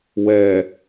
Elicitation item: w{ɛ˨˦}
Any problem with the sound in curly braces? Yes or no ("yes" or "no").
yes